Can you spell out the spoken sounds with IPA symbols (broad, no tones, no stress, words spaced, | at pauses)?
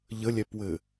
ʎəlʲɛpwɘ